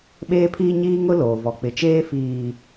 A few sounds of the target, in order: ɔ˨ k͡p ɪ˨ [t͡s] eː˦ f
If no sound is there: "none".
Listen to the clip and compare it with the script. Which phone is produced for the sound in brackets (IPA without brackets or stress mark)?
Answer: t͡ʃ